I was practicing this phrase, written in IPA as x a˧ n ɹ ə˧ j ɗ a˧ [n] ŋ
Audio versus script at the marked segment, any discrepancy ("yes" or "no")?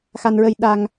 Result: yes